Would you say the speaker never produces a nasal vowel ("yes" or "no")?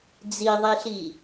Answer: yes